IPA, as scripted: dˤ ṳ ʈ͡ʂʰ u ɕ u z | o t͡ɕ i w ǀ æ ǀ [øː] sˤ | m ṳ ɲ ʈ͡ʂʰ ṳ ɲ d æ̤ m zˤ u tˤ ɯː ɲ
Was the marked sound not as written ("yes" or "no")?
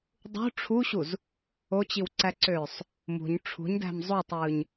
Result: no